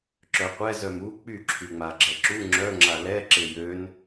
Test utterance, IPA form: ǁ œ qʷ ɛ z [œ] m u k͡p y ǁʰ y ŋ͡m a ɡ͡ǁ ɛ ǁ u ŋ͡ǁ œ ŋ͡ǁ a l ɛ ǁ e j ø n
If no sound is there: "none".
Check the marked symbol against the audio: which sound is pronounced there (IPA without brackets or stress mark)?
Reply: œ